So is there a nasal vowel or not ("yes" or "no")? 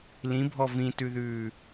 yes